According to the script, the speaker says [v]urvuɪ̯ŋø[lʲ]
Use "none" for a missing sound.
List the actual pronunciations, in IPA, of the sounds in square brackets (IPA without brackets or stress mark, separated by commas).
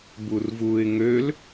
b, l